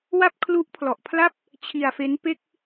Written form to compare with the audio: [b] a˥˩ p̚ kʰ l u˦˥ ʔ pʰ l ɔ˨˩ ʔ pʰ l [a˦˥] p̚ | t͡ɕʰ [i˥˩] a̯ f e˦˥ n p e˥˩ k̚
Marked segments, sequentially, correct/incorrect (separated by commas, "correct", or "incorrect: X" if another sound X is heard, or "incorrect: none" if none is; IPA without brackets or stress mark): incorrect: w, incorrect: a˥˩, incorrect: i˧